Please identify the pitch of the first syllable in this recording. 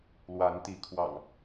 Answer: rising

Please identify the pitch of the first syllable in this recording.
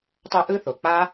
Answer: high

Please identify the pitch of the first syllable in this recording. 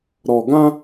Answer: low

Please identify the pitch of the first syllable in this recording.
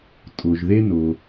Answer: low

